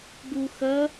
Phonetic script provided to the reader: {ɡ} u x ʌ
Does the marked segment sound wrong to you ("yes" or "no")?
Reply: no